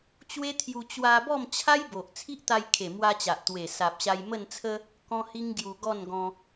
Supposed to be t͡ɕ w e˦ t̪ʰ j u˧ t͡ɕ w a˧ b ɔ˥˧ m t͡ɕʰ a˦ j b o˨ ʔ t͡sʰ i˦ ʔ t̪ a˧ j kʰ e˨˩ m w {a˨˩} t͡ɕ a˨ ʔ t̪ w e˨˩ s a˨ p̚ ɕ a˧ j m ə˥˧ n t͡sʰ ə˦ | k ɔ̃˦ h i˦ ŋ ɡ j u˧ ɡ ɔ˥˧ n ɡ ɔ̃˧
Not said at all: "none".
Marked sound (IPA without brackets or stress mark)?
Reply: a˧